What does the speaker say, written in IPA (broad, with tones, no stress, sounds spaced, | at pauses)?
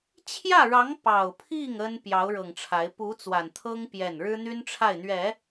t͡ɕʰ j ä˥˩ ɻ ɑ˧˥ ŋ p ɑ˨˩ ʊ̯ pʰ i˥˩ ŋ ə˥ n p j ɑ˧˥ ʊ̯ ɻ ɤ˨˩ ŋ ʈ͡ʂʰ a˧˥ ɪ̯ p u˧˥ t͡s w a˨˩ n t̪ʰ ɤ˥ ŋ p j ɛ˥˩ n ɻ ɻ̩˥ n̪ y˥ n ʈ͡ʂʰ a˥˩ ɪ̯ n̪ ɥ ɛ˨˩˦